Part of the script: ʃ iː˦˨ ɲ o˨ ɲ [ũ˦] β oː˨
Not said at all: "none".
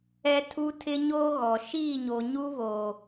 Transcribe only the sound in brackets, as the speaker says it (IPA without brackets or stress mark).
u˦